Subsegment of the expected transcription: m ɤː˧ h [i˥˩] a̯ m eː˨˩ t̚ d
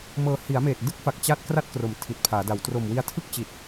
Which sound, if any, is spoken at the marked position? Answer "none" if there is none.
i˩˦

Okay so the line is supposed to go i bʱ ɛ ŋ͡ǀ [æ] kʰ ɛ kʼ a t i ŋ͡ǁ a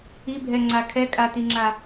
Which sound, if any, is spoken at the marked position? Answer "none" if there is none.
a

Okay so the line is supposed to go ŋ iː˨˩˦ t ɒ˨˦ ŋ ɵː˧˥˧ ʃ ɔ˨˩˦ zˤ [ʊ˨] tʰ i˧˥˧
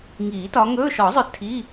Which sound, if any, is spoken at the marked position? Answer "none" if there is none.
ʊ˨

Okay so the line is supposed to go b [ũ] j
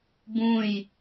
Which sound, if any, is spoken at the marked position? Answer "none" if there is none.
ũ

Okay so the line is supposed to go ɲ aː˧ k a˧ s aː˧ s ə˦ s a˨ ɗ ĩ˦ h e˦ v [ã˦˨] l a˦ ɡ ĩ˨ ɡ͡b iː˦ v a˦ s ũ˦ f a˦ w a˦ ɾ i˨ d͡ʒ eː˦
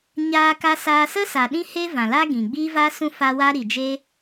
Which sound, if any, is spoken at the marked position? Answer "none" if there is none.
ã˨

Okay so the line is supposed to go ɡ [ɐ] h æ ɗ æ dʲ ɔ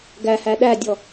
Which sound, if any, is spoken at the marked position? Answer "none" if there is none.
æ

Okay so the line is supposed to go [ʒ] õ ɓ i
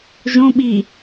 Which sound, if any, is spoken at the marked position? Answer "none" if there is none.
ʒ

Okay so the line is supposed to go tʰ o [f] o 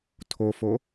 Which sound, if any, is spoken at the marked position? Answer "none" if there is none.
f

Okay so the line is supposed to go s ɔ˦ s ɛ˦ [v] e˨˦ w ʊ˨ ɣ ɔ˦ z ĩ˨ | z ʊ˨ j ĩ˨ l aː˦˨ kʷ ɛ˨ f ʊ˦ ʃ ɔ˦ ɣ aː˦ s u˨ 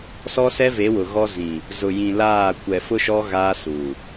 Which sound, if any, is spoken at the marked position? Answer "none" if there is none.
v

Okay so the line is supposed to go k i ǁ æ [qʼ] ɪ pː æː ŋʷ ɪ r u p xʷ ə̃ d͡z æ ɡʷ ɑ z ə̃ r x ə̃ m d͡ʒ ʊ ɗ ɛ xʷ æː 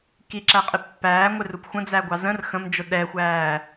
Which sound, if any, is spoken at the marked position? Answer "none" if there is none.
qʼ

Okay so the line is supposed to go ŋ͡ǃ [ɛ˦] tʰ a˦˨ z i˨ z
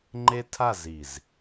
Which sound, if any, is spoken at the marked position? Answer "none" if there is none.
e˦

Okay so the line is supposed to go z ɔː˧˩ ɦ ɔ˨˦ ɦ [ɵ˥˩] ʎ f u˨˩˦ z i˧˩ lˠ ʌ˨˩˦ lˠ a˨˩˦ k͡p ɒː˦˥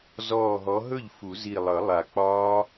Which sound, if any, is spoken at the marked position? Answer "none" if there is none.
ɵ˥˩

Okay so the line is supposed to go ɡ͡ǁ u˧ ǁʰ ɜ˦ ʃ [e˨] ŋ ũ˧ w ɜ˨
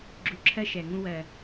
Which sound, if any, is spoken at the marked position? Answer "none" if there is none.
ɛ˨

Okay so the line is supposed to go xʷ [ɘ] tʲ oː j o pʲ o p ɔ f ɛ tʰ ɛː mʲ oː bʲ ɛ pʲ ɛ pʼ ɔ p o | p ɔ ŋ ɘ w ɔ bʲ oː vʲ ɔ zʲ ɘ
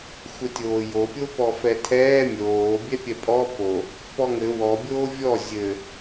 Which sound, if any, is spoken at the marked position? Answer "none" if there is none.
ɘ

